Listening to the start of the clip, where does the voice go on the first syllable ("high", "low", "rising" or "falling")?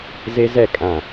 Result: high